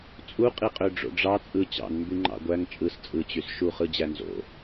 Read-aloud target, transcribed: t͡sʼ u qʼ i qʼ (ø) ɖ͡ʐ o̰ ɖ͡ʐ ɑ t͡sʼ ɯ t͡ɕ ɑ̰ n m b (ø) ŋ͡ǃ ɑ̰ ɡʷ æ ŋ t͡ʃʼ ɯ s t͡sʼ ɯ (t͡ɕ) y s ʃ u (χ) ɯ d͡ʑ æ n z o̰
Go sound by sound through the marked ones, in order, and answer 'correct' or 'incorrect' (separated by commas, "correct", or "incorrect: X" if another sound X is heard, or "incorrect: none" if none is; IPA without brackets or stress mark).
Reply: correct, incorrect: y, correct, correct